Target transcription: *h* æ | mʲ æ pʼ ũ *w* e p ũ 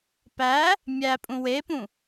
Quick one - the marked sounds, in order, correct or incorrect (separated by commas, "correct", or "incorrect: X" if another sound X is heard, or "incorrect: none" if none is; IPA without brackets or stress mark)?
incorrect: p, correct